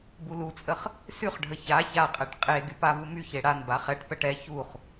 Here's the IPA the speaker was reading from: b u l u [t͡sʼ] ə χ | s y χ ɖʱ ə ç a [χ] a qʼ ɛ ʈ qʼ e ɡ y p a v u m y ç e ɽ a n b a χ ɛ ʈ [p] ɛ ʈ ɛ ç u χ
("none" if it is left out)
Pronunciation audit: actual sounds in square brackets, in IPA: t͡sʼ, ç, p

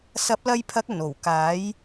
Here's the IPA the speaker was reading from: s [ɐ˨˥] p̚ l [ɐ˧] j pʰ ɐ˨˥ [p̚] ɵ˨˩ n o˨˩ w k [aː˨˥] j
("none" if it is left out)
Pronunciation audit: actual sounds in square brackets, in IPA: ɐ˨˥, ɐ˧, k̚, aː˨˥

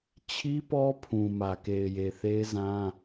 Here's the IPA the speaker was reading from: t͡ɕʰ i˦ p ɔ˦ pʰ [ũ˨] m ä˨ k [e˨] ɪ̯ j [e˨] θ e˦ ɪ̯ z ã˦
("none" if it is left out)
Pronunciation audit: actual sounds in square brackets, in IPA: ũ˨, e˨, e˨

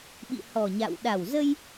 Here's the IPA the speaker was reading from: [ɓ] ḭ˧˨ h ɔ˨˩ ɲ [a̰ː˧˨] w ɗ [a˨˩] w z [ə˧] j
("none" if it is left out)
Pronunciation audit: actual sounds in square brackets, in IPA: ɓ, a̰ː˧˨, a˨˩, ə˧

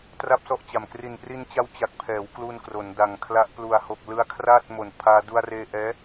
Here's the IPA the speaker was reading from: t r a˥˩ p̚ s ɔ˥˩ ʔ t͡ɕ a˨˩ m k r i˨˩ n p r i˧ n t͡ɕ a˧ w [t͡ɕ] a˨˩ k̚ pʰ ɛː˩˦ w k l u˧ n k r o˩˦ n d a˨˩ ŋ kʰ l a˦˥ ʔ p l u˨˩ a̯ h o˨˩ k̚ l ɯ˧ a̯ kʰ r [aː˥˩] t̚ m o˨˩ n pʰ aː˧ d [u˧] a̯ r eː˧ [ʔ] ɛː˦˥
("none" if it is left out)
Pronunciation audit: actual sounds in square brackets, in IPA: t͡ɕ, aː˥˩, u˧, ʔ

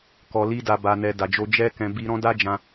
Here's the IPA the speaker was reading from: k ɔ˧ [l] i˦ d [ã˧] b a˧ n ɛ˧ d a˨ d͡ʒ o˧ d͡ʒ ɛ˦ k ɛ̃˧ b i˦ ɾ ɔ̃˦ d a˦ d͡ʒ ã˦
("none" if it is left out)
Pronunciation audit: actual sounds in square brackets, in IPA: l, a˧

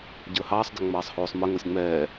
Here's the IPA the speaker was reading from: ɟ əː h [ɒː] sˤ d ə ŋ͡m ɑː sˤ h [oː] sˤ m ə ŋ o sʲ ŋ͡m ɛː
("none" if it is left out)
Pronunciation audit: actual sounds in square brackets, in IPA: ɑː, oː

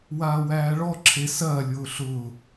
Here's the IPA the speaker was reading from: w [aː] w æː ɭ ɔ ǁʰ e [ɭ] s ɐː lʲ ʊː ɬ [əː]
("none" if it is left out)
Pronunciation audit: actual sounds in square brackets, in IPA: aː, none, ʊː

